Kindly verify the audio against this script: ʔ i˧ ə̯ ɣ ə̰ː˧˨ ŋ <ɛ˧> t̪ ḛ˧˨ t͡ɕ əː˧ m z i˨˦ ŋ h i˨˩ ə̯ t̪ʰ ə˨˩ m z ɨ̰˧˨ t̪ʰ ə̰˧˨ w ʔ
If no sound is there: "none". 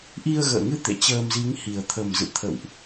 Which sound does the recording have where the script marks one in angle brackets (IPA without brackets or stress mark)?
ɨ˧